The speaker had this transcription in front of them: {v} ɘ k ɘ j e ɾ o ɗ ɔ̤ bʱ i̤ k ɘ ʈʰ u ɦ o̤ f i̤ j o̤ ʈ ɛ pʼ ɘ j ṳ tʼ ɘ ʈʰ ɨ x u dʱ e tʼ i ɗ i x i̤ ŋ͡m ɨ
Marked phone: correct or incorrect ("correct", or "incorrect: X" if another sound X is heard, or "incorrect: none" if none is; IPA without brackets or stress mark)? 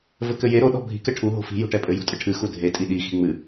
correct